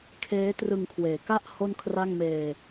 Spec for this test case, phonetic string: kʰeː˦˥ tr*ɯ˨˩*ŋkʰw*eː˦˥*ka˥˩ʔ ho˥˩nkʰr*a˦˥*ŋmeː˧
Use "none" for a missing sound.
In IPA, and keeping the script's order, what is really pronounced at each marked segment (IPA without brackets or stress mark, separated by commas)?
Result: ɯ˧, eː˨˩, a˥˩